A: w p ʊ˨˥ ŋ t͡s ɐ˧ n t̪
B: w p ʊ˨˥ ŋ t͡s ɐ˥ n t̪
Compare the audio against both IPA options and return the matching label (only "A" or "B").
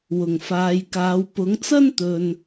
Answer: B